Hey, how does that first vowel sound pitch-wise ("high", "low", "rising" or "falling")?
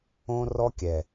high